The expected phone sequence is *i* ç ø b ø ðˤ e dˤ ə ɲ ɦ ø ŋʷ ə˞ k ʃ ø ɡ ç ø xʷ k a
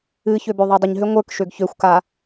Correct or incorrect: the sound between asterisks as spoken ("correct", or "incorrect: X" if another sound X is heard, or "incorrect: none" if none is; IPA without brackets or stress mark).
incorrect: ɨ